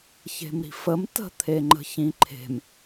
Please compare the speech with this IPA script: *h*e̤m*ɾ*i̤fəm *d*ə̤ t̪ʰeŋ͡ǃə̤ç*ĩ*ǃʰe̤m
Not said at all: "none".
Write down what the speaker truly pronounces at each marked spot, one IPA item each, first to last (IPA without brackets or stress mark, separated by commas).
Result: ç, ɾ, t, ĩ